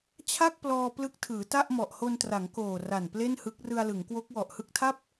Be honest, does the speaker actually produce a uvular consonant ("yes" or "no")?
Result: no